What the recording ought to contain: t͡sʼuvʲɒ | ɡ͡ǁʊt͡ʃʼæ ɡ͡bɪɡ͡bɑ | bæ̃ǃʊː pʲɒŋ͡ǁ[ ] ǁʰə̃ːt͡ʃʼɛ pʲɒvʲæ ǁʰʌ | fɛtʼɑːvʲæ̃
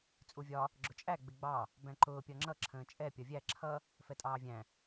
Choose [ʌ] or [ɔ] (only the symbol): ʌ